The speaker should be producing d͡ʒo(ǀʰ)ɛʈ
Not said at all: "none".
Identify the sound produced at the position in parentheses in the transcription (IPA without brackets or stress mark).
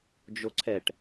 ǀʰ